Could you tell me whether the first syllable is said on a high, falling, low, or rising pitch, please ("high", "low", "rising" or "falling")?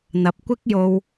low